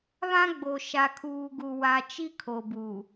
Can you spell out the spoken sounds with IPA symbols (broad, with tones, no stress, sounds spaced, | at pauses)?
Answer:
β ã˦ ɡ͡b o˨ ʃ a˨ kʰ uː˨ ɡ u˨ w a˨ t͡ʃ i˦ kʰ o˨ b u˨